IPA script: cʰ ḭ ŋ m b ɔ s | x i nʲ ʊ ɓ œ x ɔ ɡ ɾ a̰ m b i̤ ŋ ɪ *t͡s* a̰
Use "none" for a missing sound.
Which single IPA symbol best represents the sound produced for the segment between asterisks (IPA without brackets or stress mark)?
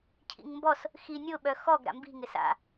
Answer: s